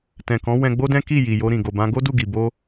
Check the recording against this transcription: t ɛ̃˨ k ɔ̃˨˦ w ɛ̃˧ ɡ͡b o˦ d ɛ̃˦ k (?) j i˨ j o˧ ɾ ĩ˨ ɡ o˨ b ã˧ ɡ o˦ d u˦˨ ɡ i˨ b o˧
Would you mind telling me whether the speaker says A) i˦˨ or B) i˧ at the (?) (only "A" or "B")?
A